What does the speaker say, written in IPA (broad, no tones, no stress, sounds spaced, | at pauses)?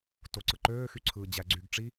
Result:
t o ǀ ɯ ǃ øː x y ǀʰ ɯː d͡ʑ æ ɡ͡ǀ y ɡ ʈ͡ʂ i